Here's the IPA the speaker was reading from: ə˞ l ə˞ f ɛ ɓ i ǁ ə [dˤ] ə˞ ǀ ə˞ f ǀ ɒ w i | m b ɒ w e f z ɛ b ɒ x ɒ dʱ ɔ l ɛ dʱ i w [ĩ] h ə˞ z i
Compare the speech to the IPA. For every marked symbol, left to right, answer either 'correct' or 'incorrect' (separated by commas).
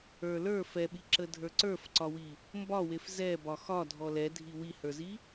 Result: incorrect, incorrect